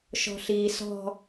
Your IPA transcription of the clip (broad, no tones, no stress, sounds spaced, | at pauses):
ʃ ɔ̤ ɬ iː s ɔ̤